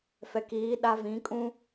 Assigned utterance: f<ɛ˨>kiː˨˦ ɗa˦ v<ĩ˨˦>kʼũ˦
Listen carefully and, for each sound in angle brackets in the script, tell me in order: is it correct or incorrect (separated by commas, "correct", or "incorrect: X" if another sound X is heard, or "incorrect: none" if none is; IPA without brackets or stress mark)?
correct, correct